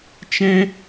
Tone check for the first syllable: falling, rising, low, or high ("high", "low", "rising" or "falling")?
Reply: high